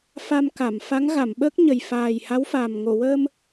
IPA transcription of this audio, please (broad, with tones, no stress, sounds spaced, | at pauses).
f a˧ m k a˨˩˨ m f a˧˥ ŋ ɣ a˨˩˨ m ɓ əː˦˥ k̚ ɲ ə˨˩ j f aː˨˩ j h a˧˥ w f aː˨˩ m ŋ o˨˩˨ w əː˧ m